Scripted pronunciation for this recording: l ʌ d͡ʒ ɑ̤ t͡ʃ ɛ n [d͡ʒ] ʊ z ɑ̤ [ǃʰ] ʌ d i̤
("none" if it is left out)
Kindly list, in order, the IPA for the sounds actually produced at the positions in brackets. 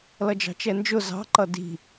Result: d͡ʒ, ǃ

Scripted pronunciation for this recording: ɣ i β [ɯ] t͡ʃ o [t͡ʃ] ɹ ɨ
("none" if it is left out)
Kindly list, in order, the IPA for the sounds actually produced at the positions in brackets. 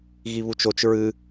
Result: u, t͡ʃ

